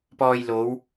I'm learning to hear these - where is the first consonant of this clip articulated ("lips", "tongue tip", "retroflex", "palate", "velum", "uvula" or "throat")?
lips